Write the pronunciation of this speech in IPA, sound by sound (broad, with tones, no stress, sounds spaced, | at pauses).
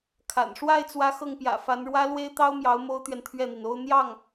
kʰ a̰˨˩ n ʂ w a˥˩ ɪ̯ t͡s w ä˧˥ x ɤ˥˩ ŋ p j ä̰˨˩ f a˧˥ n ɻ w ä˥ l w e˥ ɪ̯ t̪ ɑ˥ ʊ̯ m j ɑ˧˥ ʊ̯ m o˥ ʊ̯ t̪ ɥ ɛ˨ n t̪ʰ ɥ ɛ˥˩ n̪ i˩ n o˥ ʊ̯ n̪ j ɑ˥˩ ŋ